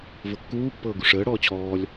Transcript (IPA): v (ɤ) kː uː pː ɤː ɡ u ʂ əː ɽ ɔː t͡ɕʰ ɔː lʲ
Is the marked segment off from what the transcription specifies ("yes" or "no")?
no